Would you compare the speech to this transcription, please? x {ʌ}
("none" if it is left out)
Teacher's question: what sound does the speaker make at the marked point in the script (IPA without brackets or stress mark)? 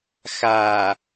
a